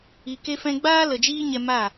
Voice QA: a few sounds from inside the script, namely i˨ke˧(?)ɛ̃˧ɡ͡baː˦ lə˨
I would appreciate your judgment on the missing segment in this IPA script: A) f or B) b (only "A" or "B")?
A